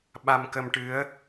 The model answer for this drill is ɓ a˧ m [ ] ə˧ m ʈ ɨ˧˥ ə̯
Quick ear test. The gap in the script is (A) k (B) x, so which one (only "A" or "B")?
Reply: A